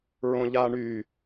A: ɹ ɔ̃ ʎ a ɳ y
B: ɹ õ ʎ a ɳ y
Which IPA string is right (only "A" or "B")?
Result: B